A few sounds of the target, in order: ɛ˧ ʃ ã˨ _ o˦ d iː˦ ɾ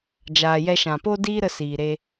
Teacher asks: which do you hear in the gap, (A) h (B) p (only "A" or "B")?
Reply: B